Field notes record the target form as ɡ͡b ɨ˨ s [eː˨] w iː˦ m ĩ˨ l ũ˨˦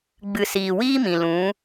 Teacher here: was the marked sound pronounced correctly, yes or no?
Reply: no